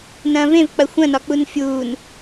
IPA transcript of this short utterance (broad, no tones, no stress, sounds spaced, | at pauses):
n ɐ̃ː v ẽ v k͡p ɐ xʷ ɐ̃ n ɒ k͡p u n fʲ uː n